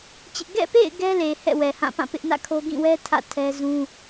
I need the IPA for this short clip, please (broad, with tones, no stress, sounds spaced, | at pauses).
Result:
t͡ɕ ɪ˦ ʔ ɡ ɛ̰˦˨ p ḛ˦˨ ɪ̯ ɡ ɛ˦ l e˨ h ɛ̰˦˨ w ɛ˨ h ã˦˨ p ã˦˨ p ɪ˦ ʔ n ä̰˦˨ kʰ o˦ ɡ ĩ˦˨ w ɛ˦ tʰ ä̰˦˨ tʰ ɛ˦ z ũ˦